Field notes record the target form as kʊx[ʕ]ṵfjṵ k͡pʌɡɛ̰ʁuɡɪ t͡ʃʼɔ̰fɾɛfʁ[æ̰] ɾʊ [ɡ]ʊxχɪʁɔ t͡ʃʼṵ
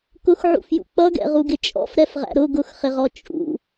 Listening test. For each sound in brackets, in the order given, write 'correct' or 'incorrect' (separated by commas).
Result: correct, correct, correct